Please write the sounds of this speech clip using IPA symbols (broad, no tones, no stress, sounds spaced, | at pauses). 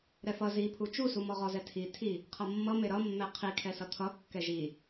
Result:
ɾ ɛ f ʌ z i pʰ u t͡ʃ u s u m ɔ ʁ ɔ z ɛ tʰ i tʰ i | qʰ ʌ mː ʌ m e ɾ ʌ mː ɛ qʰ i kʰ ɛ s ʌ t̪ʰ ʌ kː ɛ ʒ i